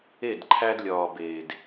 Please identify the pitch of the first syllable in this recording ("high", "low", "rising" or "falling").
falling